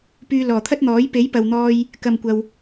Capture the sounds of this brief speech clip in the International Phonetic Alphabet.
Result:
p yː˧ l ɔː˨˩ t̪ʰ ɐ˥ t̚ n̪ ɔː˨˥ j p e˨˥ j p ɐ˨ w n̪ ɔː˧ j | k ɐ˨ m kʷ ɐ˨ w

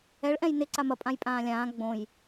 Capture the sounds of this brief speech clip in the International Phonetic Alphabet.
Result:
ɛ ɭ ʔ ɛ̃ j n ɪ ǀ a m ɐ pʼ ã j pʼ ãː lʲ ãː ɡ͡b õ j

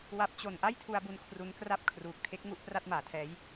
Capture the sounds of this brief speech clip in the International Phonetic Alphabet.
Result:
w a˦˥ p̚ t͡ɕ o˧ n ʔ a˥˩ j tʰ u˧ a̯ b u˧ n kʰ r u˦˥ n k r a˥˩ p̚ kʰ r uː˨˩ k̚ tʰ e˦˥ k̚ ŋ u˦˥ ʔ p r a˥˩ t̚ m aː˩˦ tʰ ɛː˦˥ j

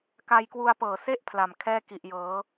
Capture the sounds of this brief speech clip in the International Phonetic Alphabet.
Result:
k a˧ j k w u˧ a̯ p ɤː˨˩ s e˥˩ ʔ pʰ l a˨˩ m kʰ ɛː˥˩ k i˨˩ ʔ j ɤː˩˦

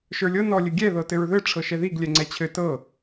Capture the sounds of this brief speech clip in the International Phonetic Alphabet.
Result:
ʃ ə˞ lʲ ɤ n ɔ lʲ ɘ ɡʲ ɛ ð ɤ t ɘ ɹ ð ɘ ʈ͡ʂʰ ɤ ʃ ɛ ð i ɡ lʲ ɛ ŋ͡ǀ ɛ t͡ɕʰ ɘ t ɤ

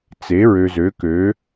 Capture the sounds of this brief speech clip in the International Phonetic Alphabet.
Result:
t͡s e˩˥ ɹ ø˨ z ø˩˥ k ø˩˥

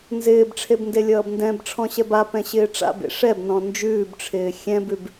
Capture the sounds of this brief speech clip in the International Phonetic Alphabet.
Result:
n z ɪː b ʈ͡ʂʰ e b n d e lʲ ʌː b n d ɛ̃ b ʈ͡ʂʰ ɔ̃ ɕ ɛ b a p ɛ̃ ɕ ɪː ʈ͡ʂ a̰ b ḛ ʂ ɛ b n ɔ̃ n d͡ʒ ʉː b ʈ͡ʂʰ ɪː xʲ ɛ̃ b ʉ b

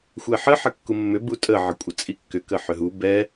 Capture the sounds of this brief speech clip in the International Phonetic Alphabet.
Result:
xʷ ɛ ħ ə ħ ə kː u mː ʏ b u tʼ ə ʕ ə kʷʼ ə t͡sʼ i kː ʏ k ə ħ ʏ ɦ u b ɛ

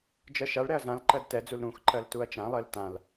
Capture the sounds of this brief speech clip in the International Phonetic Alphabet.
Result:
d͡ʒ ɜ ʃ a ɭ ɾ ɛ ɐ̯ z ã l ǃ ɜ d t ɛ d͡z u l ɾ ũ x ǃ ɜ l t u ɐ̯ t͡ʃ ã lˠ ɜ l t ã l

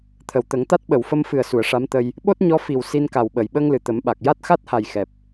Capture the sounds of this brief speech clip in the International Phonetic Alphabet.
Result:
t̪ʰ ə˨˩˨ w t̪ ə˨˩˦ ŋ t̪ a˦˥ t̚ ɓ ə˨˩˨ w f ə˧ m f ɨ˨˩ ə̯ s u˨˩˨ ə̯ ʂ a˧˥ m t̪ ə˧ j | ɓ o˦˥ t̚ ɲ ɔ˧˥ f i˨˩ w s i˧ n k a˨˩ w ɓ əː˨˩˨ j ɓ əː˧ ŋ l ɨ˨˩˨ t̪ ə˨˩˦ m ɓ a˨˩ k̚ j a˦˥ t̚ x a˦˥ t̚ h a˨˩ j x ɛ˨˩ p̚

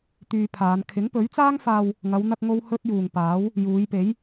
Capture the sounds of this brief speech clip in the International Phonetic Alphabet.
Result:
t̪ yː˧ pʰ aː˨˧ n kʰ ɪ˨˥ ŋ p ɵ˨˥ ɥ t͡s aː˥ ŋ f aː˧ w | ŋ ɐ˨˧ w n̪ ɐ˧ k̚ ŋ o˧ w h ɵ˥ t̚ j uː˨ ŋ p aː˨˥ w | j uː˨˧ j p e˨˥ j

